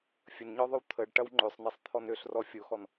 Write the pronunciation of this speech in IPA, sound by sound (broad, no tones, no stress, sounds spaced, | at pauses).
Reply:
fʲ ə n ɲ ɔ ðˤ ʏ w t̪ʰ ə ɖ ʈ ɐ w ŋ͡ǃ ø sˤ n e sˤ t̪ʰ ɔ n ø ɬ r ɔ fʲ o x ɔ n